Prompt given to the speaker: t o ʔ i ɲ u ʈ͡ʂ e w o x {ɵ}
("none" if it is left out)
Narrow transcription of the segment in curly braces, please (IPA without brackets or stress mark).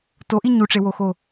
o